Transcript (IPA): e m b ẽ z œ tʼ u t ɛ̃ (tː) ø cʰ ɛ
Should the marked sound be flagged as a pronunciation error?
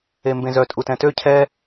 yes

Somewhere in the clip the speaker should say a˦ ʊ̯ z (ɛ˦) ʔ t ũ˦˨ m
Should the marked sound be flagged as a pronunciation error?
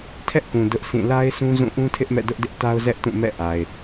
no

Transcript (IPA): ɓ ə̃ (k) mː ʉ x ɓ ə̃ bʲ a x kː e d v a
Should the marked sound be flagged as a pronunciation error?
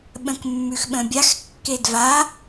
no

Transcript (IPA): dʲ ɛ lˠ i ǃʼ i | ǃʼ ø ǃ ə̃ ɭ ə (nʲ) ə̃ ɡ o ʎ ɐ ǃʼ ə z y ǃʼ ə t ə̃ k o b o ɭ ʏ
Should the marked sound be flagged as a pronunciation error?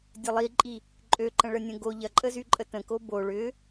no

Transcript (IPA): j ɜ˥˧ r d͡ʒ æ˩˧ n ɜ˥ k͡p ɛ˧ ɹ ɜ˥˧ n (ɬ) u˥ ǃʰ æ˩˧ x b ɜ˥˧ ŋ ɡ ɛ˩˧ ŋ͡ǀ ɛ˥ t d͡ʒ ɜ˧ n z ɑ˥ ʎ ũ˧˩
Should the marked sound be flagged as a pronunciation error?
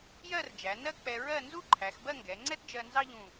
yes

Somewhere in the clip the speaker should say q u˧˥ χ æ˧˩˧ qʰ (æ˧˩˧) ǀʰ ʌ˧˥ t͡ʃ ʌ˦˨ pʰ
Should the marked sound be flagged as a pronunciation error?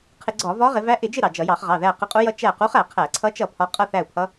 no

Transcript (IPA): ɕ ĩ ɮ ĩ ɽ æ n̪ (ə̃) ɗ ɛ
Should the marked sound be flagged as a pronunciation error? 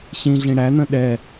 no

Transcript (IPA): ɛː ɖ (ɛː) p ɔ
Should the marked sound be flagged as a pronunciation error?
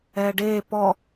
yes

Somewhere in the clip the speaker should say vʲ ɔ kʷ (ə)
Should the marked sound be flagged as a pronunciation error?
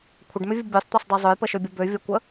no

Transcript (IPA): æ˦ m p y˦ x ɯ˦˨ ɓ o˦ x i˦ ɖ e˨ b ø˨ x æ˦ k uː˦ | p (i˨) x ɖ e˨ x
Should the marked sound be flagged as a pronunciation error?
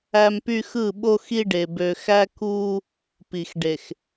no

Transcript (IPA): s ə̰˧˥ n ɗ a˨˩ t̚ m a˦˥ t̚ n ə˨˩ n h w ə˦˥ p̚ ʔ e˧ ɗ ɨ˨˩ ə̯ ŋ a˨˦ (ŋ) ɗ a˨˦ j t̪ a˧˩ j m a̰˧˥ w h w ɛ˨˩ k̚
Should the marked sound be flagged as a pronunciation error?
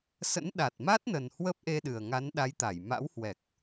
yes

